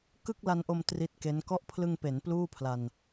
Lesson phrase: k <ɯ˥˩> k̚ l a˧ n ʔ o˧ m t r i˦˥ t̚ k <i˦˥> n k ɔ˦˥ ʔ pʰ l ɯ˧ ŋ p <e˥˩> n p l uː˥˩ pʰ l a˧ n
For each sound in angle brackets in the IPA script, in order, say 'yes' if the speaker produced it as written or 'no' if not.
yes, no, no

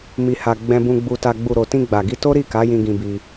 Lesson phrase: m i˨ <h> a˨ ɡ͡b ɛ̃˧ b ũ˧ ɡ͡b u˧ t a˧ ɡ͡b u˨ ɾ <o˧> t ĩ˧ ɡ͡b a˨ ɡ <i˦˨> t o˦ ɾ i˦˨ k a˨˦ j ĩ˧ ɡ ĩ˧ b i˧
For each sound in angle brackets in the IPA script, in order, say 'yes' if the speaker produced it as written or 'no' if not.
yes, no, no

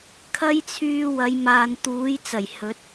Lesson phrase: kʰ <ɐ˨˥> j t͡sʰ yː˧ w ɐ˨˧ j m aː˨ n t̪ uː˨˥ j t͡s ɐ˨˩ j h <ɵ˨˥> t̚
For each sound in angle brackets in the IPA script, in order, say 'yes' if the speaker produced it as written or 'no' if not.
no, yes

